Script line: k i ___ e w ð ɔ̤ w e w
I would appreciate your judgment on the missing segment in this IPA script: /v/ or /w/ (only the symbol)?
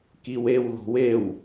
w